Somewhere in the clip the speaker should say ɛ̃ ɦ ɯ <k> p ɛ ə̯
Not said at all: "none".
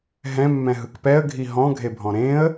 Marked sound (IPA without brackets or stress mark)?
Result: k